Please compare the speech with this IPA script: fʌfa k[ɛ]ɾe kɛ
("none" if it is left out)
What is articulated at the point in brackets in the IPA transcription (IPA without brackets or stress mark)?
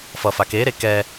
e